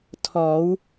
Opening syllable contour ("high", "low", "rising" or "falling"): rising